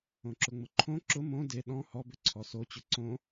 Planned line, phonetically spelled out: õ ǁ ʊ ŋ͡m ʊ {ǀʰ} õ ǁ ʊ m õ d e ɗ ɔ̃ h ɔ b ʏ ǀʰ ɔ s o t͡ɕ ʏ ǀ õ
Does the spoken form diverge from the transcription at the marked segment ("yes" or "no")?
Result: yes